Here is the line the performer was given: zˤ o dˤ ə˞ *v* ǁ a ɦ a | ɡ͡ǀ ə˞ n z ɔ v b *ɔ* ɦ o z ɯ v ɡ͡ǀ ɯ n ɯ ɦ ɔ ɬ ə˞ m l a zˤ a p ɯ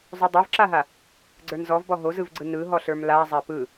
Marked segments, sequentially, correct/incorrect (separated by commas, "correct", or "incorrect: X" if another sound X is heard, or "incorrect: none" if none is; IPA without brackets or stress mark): correct, correct